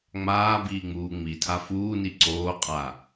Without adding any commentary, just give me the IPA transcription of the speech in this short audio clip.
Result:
ŋ͡m aː b iː ŋ͡m uː ŋ͡m i tʰ a f uː n i ǀ oː qʼ a

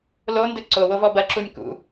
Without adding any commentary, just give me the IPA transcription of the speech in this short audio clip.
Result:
l o n d ɘ ǀ o w o v ɔ b ɐ ǁ u nʲ k ṵ

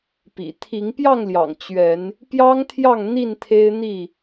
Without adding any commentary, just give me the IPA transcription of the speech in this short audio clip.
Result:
p ḭ˨˩ t̪ʰ i˨˦ ŋ p j ɑ˥˨ ŋ l j ɑ̰˨˩ ŋ t͡ɕ ɥ ɛ˨˦ n | p j ɑ˦ ŋ t̪ʰ j ɑ˥˨ ŋ n̪ i˥˨ n t̪ʰ e˦ ɪ̯ n̪ i˥˨

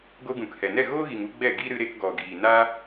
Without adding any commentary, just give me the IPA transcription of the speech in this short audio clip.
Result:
ɡ o˧ ɡ ũ˨ k h ɛ˨ n ɛ˦˨ ɣ oː˦ ɣ i˨ ŋ u˧ ɡ͡b ɛ˦˨ ɡ i˦ ɾ ɨ˧ ɾ e˧ k ɡ ɔ˨ ɡ iː˨ n aː˦

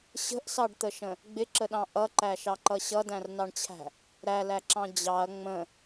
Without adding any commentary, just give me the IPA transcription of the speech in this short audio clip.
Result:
ɕ ə̤ ʔ s ɑ ɖ t̪ ə ʃ ə̃ | ɡ͡b ɪ ǁ ə ɗ ɑ̃ ʔ ʌ ǃ æ ʃ ɑ ǃ ʌ ɕ ʌ d æ̃ r n ɑ ɳ t͡ɕʰ æ̤ | ɾ æ l æ ǁ ɑ̃ d͡ʑ ɑ ɐ̯ ŋ͡m ə̃

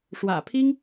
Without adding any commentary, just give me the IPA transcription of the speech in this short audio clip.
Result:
ʂ w ä̰˨˩ pʰ i˥ ŋ

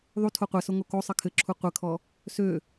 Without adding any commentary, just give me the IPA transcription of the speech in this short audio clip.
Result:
ðˤ u tʰ o qʷ ɛ s o ŋ o k o sˤ ɘ kʰ ɘ ǁʰ u qʷ ɘ kʰ ɔ | s ø

